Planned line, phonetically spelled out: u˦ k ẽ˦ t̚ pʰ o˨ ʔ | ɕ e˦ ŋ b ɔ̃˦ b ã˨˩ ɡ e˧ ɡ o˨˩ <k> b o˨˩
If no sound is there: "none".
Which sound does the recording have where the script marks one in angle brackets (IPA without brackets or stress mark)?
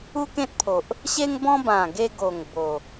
ŋ